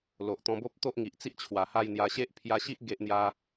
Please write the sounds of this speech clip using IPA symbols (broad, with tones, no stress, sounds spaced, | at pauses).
l o˨ ʔ t̪ ɔ̃˧ b o˦ p̚ t̪ o˦ ʔ ŋ i˨ ʔ t͡s i˦ ʔ t͡ɕʰ w a˨˩ h a˥˧ j n̪ j a˧ ɕ e˦ ʔ pʰ j a˧ ɕ i˦ ʔ ɡ e˦ ʔ n̪ j a˦